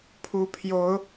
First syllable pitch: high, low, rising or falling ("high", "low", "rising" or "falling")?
rising